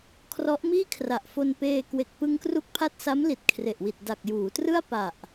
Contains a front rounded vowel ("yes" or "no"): no